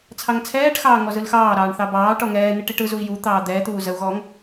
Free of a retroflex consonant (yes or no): no